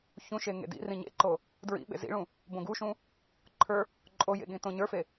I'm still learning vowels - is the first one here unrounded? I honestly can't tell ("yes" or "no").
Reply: no